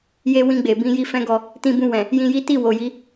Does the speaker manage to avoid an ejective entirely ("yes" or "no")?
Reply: yes